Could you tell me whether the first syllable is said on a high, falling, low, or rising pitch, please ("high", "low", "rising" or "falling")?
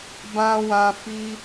high